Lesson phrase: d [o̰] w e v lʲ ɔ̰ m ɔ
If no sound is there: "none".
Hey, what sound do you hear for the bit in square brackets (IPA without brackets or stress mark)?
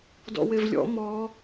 ɔ̰